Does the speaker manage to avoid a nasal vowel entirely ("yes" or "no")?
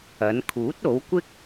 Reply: yes